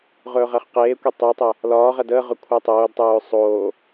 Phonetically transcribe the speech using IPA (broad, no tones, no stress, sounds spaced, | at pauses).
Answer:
ʁ ɵː ʁ æ χ q eː kʷ e tˤ ɵ tˤ æ | l ɒː ʁ æ d ə ʁ ɵ kʷʰ æ tˤ oː d tˤ ɵː sˤ oː